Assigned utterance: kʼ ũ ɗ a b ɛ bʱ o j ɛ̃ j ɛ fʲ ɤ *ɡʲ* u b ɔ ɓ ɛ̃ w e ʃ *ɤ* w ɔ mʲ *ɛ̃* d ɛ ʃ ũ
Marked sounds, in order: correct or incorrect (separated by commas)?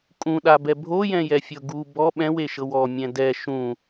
incorrect, correct, correct